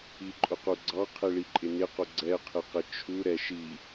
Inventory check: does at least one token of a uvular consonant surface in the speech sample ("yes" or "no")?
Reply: yes